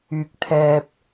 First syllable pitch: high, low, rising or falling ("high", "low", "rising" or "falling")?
low